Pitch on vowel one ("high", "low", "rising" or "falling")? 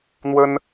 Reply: high